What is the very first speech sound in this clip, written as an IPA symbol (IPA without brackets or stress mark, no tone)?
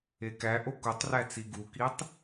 e